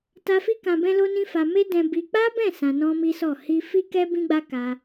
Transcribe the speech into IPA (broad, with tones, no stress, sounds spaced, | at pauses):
t a˧ f i˦ k ã˧ b ɛ̃˦ l o˦ n ĩ˦ f a˧ m e˦ d ɛ̃˧ b i˧ k͡p a˦ b ɛ̃˦˨ s ã˧ n ɔ̃˦ m i˦ s ɔ˦˨ h i˧ f i˦ k ɛ˦ b ĩ˦ ɡ͡b a˦ k a˧